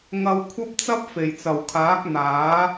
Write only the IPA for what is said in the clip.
ŋɐ˧wkʷʰɐ˥p̚t͡sɐ˥p̚ fe˨˩jt͡sɐ˨˩wkʰaː˨˥k̚ n̪aː˨˥

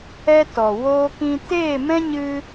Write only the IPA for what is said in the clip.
ɛ˧ tɔ˨ woː˧kĩ˧ teː˦˨mɛ̃˦ ɲɨ˦

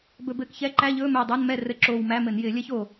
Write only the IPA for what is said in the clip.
bɵ˧˩˧bɘː˧˩kçɛ˧˥˧ ǃæ˧˥˧ʎɵː˧˥˧ mɘː˧˩dˤo˧˥˧nmɛ˥˨ rɘ˧˩ǁoː˧˩wmæ˧˥˧mɘ˧˩˧n jɪː˧˩˧lʲɛ˥ço˧˩

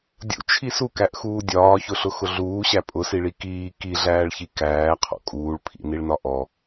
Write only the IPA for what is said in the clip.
dʲṵt͡ʃʰi sukæʔxuː dʲɒːçʊɬʊxʊ ɮuːɕæ pʼʊsiɭi kiː kiɮæːɭçi kæːqʰɔ̰ kʼuːɭpʰḭniɭnɒ ʔɔ

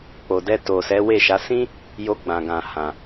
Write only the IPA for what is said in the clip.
k͡po˨dɛ˧ to˨ sɛ˨˦we˦˨ʃa˨˦ sĩ˦ | jo˧ ɡ͡bã˨ɡã˨hã˨

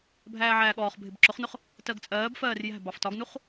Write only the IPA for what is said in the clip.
bʱæːʕæːɠɔːχbʱɪb ǁʊχnʊχ | tɜɡt͡sʼɜːbfɜːr jæ̤ bɑftɒɡnuχ

